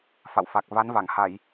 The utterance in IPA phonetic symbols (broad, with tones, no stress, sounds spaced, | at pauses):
f a̰˧˨ w f a˨˩ k̚ v a˨˦ n v a˧˩ ŋ h a˧˩˨ j